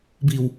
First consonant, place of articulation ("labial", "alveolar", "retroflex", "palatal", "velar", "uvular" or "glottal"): labial